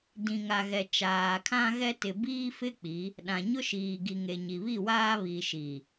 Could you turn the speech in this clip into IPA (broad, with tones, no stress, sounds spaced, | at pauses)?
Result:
d ĩ˨ ŋ a˨ ɣ ɛ˨ t͡ʃ aː˨ kʰ ã˦ ɣ ɛ˦ t ɪ˨ b iː˦ f ɪ˦ k͡p i˨˦ | ɗ ã˨ ɲ ʊ˦ ʃ iː˨ ɡ i˨ ŋ e˨ ɲ i˨ β i˦˨ w aː˦ β i˨ ʃ i˨